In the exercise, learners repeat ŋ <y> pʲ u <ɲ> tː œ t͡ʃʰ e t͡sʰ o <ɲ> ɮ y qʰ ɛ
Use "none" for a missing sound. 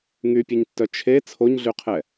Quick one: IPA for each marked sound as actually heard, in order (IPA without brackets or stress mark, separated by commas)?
y, ɲ, ɲ